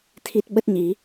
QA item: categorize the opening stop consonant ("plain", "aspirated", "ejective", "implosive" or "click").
aspirated